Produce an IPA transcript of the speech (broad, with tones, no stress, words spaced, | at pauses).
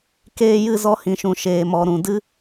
keː˧jɨ˦˨zɔ˧ hĩ˨ʃũ˨ ʃeː˨mɔ˨ ɾũ˨ dɨ˦